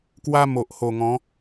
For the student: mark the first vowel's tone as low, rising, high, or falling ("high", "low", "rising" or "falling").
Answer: high